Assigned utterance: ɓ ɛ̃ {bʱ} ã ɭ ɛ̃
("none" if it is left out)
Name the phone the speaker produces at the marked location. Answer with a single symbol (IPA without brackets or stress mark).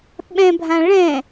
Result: bʱ